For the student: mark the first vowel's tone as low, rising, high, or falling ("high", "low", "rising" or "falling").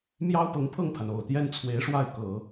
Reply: high